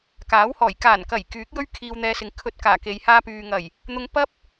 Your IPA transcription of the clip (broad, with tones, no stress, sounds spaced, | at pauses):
k aː˨˥ w h ɔː˨˩ j k aː˨˩ n k ɐ˨˩ j k yː˨˥ k̚ j ɵ˥ ɥ kʰ iː˧ w n̪ ɛː˧ s ɪ˨ ŋ kʰ ɵ˧ t̚ k aː˨˩ k e˨˧ j h aː˧ p yː˨ ŋ ɐ˨˩ j | n̪ ʊ˧ ŋ p ɐ˥ p̚